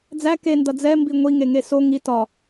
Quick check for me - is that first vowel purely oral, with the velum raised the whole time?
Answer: yes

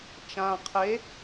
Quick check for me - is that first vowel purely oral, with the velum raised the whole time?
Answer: no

